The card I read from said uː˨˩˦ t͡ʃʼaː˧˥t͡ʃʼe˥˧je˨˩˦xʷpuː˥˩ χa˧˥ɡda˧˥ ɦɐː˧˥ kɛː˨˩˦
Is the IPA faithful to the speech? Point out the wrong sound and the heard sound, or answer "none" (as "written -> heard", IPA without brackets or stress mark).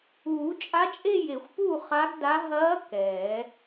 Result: aː˧˥ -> a˧˥